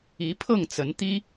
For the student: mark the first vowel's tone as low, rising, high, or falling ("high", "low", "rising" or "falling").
rising